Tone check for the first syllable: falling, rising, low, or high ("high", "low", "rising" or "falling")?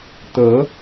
rising